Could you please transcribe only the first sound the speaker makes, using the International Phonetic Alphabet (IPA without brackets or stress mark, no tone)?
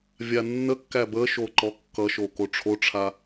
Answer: vʲ